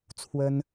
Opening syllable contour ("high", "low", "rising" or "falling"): high